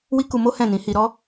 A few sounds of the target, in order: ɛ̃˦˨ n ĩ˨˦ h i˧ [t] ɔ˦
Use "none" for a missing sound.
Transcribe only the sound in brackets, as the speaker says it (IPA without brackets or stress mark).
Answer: ɾ